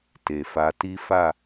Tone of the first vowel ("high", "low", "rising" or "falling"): low